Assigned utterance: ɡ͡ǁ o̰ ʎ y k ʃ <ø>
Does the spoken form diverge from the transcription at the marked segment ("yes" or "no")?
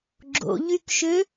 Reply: no